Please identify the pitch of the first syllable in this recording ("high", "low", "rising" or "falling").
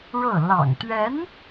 falling